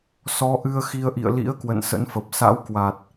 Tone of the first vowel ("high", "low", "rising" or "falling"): rising